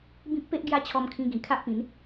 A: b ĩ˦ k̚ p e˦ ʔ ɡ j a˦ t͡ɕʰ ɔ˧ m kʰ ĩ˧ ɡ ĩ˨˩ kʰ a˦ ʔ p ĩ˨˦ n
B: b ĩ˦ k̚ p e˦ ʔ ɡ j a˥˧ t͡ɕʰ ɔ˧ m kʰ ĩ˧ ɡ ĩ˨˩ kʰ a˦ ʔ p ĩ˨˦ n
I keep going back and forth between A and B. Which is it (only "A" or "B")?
A